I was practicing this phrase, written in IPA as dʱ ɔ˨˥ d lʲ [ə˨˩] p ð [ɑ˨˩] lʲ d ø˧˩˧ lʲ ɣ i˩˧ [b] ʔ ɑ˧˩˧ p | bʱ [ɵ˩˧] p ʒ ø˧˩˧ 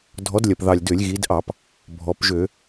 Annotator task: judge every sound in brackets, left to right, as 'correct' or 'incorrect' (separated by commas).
incorrect, correct, incorrect, incorrect